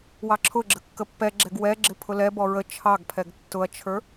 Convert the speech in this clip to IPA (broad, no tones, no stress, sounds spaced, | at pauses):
w ɑ ǁʰ ʊ ɡ͡ǁ ə kː ə pː ɛ ɡ͡ǁ ɛ ɡ w ɛ ɡ͡ǁ ɪ pʰ ʊ l ɛ b ɔ ɹ ə t͡ʃʰ ɑ ɡ pʰ ɛ ɡ tː ʊ ɐ̯ t͡ʃʰ ə˞